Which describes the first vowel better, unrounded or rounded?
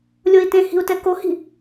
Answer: rounded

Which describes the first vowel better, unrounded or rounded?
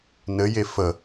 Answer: unrounded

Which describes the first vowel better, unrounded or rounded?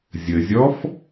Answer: unrounded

